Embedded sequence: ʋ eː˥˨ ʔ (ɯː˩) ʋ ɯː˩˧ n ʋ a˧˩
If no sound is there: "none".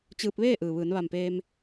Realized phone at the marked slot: ɯː˩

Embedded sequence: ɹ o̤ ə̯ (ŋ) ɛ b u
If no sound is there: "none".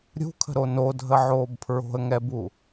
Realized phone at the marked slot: ŋ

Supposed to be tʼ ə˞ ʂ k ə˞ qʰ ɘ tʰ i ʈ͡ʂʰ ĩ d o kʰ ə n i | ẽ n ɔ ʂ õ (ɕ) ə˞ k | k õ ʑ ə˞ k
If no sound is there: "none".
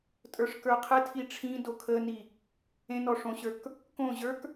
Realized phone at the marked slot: ɕ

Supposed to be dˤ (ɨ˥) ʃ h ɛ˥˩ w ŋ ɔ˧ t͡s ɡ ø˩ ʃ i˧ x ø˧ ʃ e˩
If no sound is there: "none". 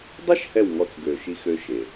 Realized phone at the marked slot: ɛ˥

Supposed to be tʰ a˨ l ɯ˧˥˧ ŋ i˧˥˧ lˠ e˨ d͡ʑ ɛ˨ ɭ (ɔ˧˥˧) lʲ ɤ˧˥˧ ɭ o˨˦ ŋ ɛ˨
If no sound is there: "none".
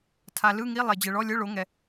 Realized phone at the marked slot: ɔ˧˥˧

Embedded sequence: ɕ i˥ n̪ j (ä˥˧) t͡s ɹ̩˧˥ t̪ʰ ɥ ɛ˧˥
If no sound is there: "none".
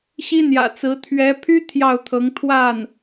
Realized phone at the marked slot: ä̰˨˩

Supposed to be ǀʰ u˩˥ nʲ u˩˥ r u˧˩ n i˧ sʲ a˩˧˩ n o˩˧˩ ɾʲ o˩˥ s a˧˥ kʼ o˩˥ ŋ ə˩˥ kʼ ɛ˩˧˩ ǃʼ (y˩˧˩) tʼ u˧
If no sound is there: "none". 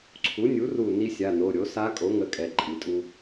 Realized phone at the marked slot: i˩˧˩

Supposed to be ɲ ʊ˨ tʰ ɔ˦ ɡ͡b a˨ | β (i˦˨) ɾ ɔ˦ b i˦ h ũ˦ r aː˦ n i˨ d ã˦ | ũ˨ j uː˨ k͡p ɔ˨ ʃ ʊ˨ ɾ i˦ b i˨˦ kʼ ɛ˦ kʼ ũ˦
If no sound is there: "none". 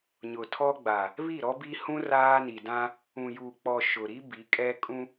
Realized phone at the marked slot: i˦˨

